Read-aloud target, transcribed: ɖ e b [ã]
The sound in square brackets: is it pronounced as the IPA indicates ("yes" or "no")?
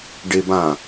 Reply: yes